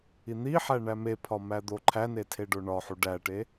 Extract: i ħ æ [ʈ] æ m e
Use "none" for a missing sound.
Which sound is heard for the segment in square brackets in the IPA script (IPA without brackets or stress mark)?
ɳ